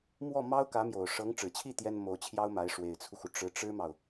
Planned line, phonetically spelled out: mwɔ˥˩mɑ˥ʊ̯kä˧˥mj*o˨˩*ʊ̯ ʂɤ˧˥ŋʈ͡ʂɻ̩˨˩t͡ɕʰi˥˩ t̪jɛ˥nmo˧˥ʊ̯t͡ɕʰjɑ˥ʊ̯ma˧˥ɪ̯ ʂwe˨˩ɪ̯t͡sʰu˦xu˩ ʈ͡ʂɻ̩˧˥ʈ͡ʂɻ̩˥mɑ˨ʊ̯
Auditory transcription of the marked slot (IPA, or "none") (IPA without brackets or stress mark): o˨˩